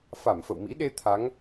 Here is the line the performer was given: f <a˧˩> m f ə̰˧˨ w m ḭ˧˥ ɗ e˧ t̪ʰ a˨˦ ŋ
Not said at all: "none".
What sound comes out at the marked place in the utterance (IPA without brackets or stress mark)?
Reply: a˧˩